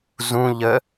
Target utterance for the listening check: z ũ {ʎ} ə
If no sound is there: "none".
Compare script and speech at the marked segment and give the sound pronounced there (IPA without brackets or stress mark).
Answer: ʎ